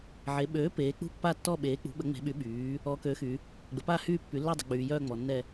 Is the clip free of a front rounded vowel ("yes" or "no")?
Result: no